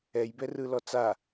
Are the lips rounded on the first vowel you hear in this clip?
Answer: no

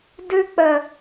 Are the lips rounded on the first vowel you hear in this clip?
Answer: no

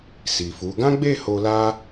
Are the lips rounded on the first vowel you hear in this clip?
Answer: no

